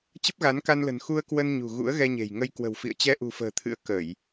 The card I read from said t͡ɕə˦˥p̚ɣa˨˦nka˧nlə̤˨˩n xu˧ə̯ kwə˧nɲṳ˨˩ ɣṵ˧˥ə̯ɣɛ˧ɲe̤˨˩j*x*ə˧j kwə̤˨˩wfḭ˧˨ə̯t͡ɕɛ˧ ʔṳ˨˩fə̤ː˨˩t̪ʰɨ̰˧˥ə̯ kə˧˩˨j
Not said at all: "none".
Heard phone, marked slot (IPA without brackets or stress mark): ŋ